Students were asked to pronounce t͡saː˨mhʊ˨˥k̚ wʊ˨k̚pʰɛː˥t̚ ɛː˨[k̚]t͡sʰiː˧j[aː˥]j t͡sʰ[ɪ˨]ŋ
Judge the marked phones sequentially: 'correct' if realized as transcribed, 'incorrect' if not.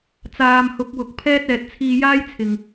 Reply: incorrect: t̚, correct, correct

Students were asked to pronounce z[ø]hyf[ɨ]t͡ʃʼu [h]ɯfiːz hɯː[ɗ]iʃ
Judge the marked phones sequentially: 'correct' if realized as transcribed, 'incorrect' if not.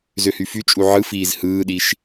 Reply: correct, incorrect: y, incorrect: ʕ, correct

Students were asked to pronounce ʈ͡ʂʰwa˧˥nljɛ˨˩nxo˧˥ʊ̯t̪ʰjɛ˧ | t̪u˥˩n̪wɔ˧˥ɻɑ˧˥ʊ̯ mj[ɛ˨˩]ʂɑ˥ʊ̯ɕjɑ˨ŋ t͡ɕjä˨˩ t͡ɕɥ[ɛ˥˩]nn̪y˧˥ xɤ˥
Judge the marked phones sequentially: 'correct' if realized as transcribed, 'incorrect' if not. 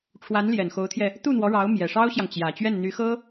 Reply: correct, correct

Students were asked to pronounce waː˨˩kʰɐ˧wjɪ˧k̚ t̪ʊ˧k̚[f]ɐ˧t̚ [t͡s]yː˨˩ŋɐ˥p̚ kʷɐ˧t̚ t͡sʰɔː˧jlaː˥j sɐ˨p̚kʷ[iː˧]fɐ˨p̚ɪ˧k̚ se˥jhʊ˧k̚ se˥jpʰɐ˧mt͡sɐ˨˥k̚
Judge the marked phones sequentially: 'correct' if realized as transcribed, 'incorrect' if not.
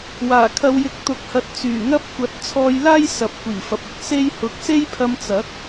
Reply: incorrect: h, correct, incorrect: iː˨˩

